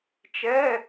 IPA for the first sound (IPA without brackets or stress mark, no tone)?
t͡ʃ